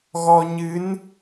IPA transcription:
ɣɔ˧ɲɨ˧˥n

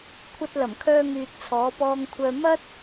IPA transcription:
kʷʰɐ˧t̚ lɐ˨˩mkʰœː˧ŋyː˨t̚ t͡sʰɔː˨˧pɔː˧ŋkʷʰœː˧ mɐ˥t̚

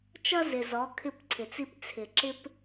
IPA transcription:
t͡ʃʌ˦zɪ˨zɔ˨˦ kʰɪ˦˨pǀʰɪ˨t͡si˦p t͡sʰɪ˨ǁɪ˦p

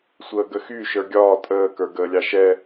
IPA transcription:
sʷəːɡəxy ʃə˞ɡʲɒː tʼəː kə˞ɡəːlʲɑʃɛ

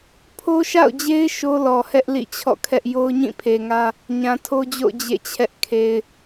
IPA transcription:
pʰo˦ʃa̰˦˨ʊ̯d͡ʑe˦ɪ̯ ʃo˦lɔ˨hɛ˦ʔ lḭ˦˨t͡ɕʰɔ̰˦˨kʰɛ˦ʔ jo˦ʊ̯ɲĩ˦˨pʰe˨ŋä˦ | ɲã˨tʰo˦d͡ʑo̰˦˨ʊ̯ d͡ʑḛ˦˨t͡ɕʰɛ˦ʔ kʰe˨ɪ̯

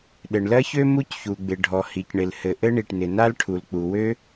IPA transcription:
ɗɘ˩ɳlɜ˥çø˥ mu˥cçu˩ɡ͡bɪ˩ ɖʱɔ˩hi˩cɳɪ˩lhɘ˩ ʔɘ˥ɳi˩ʈnɪ˩ na˥lʈʰu˩lk͡pu˩ wø˥

